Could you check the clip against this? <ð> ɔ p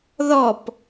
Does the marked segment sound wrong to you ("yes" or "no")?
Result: no